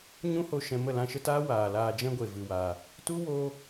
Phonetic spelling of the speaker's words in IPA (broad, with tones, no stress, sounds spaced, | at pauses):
ɲ ũ˦ h o˧ ʃ ɛ̃˧ m ə˦˨ l ã˧ ʃ ə˦ t aː˦ w aː˨ l aː˧ d͡ʒ ɛ̃˦ ɡʷ e˨ v ɨ˧ w aː˧ | t u˦ w oː˦